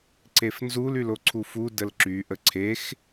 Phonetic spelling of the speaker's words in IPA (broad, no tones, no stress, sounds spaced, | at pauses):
ǀ e f n z u l y l o ǀʰ u f u d ə l ǁ y ʔ ə ǀʰ e x